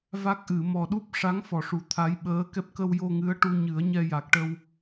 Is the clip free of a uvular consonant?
yes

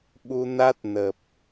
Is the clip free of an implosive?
no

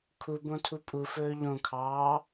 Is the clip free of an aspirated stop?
no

